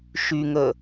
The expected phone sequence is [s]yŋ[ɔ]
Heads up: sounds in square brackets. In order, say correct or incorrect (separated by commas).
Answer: incorrect, incorrect